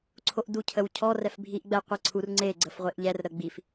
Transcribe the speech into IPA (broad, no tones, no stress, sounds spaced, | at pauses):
ǀʰ o ʔ d u cʰ ə w cʰ ɔ r ɛ f bʱ i ʔ ɡ͡b ɛ qʷ e ǀʰ u r ŋ͡ǀ e ɡ͡ǀ ə f ʁʷ e ʔ ʎ ɛ r ɾ ə ɡ͡b i f